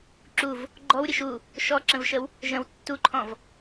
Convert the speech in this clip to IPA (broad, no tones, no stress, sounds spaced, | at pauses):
ǁ u v | ɡ͡ǃ ɔ w ɾʲ ɘ ʃ u | ʃ ɔ ǁ ə̃ v ʃ ə w | ʒ ə̃ w tː u ǃʰ ɔ̃ v